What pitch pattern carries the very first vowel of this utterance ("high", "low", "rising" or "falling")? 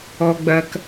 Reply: low